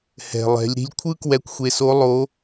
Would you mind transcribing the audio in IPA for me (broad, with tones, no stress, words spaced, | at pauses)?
hɛ̤˩lˠɛ̤˩˧lʲ ɾi̤˧lʲkʷʰɯ˥kwɛ˧kʷ xʷe˧so˧˥ lˠo˧˥